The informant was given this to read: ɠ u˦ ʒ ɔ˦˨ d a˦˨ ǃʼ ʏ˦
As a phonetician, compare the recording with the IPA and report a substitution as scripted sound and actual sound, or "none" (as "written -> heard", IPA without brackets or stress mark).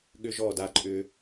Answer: u˦ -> ʏ˦